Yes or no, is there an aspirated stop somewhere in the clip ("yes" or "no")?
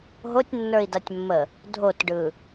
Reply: no